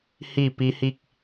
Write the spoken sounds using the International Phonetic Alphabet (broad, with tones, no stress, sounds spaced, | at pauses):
h i˧˩ p i˧˥ h i˥˨ k̚